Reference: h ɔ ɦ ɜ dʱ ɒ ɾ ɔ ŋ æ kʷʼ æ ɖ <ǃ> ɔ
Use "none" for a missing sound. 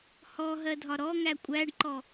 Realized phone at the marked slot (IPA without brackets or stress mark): ǃ